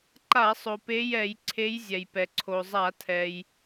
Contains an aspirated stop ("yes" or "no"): yes